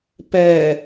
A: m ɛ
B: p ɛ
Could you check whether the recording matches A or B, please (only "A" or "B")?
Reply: B